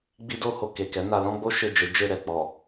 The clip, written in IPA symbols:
ɡ͡bi˦do˦ho˧ ke˨kɛ˨˦ na˧lɔ̃˦ɡ͡bo˦ ʃe˦˨d͡ʒe˨˦d͡ʒe˦˨ ɾɛ˨k͡pɔ˨

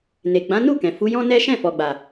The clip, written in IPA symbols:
ne˨ ɡ͡bã˨˦nu˦˨kɛ̃˨ fu˨˦jɔ̃˦nɛ˦ ʃɛ̃˦˨fɔ˨ɡ͡ba˨

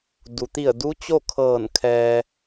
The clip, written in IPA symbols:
du˩t̪i˧˩ə̯du˧˥ t͡ɕo˥˨kʰɤː˧˩n kʰɛː˧

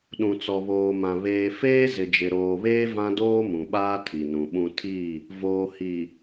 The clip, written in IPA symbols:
ɗũ˨t͡sɔ˨βoː˨mã˨ βeː˨feː˦ zɪ˨d͡ʒɪ˨ɾoː˨βeː˦ vã˦doː˦mũ˨ɓaː˦ tʰi˨nũ˨ɓũ˦ tʰi˦˨ | voː˨hi˨

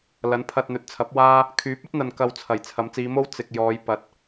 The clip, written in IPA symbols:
lɐ˨˥npʰɐ˧t̚n̪ɵ˨˥t̚t͡sʰɐ˨˥p̚ waː˥ | kʰyː˨˥p̚ɐ˥t̚n̪ɐ˨n kɐ˧wt͡sʰɐ˨˩j t͡sʰɐ˨˥mt͡siː˨˧mo˥w t͡sɪ˨k̚jɔː˨˧j pɐ˨˥t̚

